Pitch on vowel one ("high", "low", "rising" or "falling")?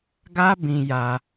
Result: high